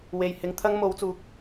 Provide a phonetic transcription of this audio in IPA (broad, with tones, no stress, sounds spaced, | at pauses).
w e˨ j h ɪ˨˥ ŋ t̪ʰ ɐ˥ ŋ m o˨˧ w t͡s uː˨ k̚